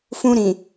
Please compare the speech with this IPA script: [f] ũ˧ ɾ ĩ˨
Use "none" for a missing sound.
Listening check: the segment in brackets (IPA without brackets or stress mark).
f